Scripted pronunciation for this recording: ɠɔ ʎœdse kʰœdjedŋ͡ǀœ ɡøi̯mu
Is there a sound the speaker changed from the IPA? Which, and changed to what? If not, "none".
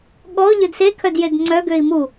none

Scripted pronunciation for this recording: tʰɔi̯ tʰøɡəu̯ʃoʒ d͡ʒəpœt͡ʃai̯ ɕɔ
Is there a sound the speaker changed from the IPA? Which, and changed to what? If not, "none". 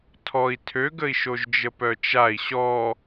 u̯ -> i̯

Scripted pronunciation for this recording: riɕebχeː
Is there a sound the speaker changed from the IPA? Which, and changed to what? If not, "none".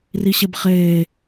none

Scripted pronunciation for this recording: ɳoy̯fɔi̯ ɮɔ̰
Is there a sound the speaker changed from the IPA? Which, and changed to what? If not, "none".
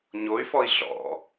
ɳ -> ɲ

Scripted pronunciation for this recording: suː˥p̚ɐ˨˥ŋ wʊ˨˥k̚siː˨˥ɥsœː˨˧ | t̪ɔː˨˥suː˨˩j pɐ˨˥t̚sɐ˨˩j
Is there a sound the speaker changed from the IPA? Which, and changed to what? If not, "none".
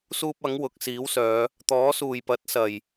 ɥ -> w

